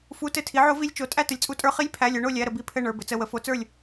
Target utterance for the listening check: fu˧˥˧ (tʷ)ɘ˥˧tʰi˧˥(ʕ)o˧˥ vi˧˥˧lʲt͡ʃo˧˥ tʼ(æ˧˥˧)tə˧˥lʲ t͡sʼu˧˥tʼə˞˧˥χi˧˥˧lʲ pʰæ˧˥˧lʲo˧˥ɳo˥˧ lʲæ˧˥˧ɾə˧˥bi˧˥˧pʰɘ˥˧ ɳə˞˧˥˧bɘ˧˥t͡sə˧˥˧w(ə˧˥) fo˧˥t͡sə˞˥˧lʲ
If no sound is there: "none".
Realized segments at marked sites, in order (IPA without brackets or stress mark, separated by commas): t, ʕ, æ˥˧, ə˧˥